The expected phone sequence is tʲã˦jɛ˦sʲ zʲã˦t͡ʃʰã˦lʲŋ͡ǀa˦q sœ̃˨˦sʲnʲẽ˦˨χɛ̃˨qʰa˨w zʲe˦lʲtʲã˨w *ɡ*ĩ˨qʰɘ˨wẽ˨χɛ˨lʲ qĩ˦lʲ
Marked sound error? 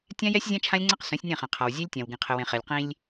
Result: no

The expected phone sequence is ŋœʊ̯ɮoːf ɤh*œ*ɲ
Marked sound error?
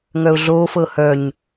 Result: no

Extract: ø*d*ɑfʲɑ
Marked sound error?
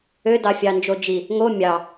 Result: no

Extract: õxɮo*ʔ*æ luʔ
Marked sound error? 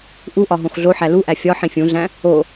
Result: yes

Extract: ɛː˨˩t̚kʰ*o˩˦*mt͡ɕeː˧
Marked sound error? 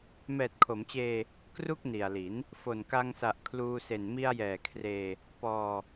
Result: no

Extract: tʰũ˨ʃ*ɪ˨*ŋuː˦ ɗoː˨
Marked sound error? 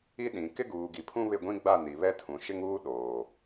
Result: yes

